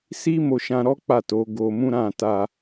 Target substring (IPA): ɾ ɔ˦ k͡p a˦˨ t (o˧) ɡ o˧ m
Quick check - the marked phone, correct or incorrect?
incorrect